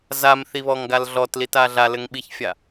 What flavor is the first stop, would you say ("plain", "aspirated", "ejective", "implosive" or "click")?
plain